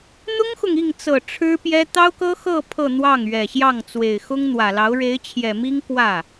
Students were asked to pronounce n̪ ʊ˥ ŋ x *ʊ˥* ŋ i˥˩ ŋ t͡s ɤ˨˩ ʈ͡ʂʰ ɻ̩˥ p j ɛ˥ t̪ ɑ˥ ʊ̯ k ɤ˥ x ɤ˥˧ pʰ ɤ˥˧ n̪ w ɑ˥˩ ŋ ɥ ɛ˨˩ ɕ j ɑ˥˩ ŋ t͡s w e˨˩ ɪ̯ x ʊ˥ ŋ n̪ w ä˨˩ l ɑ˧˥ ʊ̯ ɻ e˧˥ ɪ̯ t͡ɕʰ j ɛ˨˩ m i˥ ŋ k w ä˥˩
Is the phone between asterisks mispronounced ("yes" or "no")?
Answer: yes